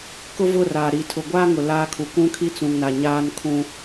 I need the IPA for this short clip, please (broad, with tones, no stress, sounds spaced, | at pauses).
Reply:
k ʊ˦ v ʊ˦˨ r aː˨ ɾ i˨ tʰ ʊ˨ ɡʷ a˦ ŋ ʊ˨ l aː˦ kʰ u˨ k ũ˦ kʰ i˦ t͡s ũ˨ ŋ n a˨ ɲ aː˦ n kʰ ũ˦